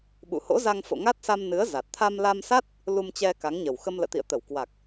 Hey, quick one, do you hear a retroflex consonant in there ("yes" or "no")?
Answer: no